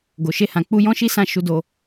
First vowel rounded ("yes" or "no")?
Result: yes